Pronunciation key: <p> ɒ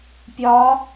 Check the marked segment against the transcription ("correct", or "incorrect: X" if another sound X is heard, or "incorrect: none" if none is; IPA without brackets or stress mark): incorrect: pʲ